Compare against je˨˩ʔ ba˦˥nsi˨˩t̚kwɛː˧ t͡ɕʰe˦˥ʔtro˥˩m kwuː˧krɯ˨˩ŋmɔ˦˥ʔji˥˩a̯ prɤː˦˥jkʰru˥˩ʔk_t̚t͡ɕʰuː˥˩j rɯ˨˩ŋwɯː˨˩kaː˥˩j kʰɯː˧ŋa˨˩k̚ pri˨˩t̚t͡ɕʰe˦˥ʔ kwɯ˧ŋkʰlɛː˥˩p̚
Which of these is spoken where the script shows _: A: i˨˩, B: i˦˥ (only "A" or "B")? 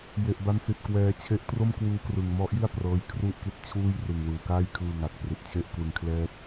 B